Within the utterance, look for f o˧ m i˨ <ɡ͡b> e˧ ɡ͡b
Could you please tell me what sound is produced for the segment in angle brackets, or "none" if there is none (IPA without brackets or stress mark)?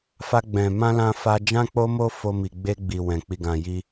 ɡ͡b